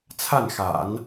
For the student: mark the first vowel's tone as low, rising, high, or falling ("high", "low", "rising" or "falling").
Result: falling